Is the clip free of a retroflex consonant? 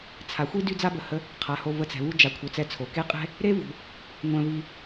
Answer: yes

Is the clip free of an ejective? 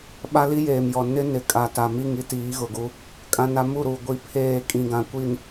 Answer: no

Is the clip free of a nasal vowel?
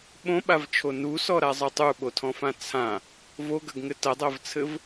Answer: no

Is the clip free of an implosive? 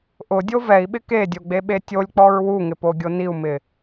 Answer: no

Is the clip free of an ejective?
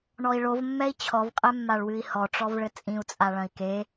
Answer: no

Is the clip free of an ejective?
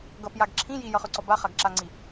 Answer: yes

